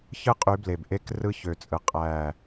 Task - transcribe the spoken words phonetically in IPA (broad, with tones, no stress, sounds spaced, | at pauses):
ç ɯ˦ qʼ y˨˦ b l e˨ b ʔ e˦ k r ɯ˦ ç ø˨ t͡sʼ ɯ˨ qʼ æ˦˨